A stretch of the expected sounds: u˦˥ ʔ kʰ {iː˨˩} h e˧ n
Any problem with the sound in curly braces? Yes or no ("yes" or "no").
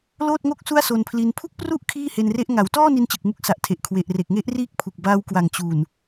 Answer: yes